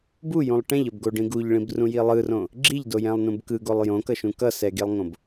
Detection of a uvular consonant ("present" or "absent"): absent